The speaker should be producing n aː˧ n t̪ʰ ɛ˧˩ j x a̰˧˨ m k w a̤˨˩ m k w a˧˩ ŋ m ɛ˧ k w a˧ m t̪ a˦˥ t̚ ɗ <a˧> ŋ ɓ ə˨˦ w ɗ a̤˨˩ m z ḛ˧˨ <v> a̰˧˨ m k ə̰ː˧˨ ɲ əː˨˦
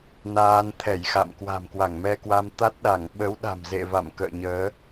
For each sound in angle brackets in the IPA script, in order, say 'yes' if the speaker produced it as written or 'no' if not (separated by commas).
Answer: no, yes